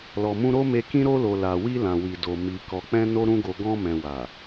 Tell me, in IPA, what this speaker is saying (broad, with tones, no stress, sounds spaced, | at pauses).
l ɔ˨ m ũ˧ ɾ o˦ m e˧ k ĩ˧ ɾ o˧ l o˨ l a˨ w i˧ l ã˨ w i˨ d o˨ m i˨ k ɔ˨ k͡p ɛ̃˧ n o˦ ɾ ũ˦ ɡ o˧ ɡ ɔ̃˧ m ɛ̃˨ w a˨